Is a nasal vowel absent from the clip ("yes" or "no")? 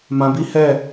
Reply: no